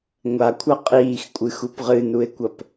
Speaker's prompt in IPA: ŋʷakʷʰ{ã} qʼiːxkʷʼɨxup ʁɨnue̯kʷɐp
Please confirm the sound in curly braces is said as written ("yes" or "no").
no